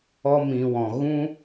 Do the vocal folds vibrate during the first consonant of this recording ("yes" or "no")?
yes